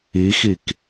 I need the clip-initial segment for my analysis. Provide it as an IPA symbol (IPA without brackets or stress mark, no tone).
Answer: i